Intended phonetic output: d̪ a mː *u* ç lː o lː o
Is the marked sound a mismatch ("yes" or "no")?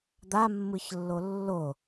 yes